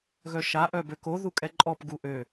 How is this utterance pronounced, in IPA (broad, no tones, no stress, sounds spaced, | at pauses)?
ɣ œ ʃ a ʔ œ b ø k o ð u kʼ ɛ ǃʼ ɔ p ɡ u ʔ ø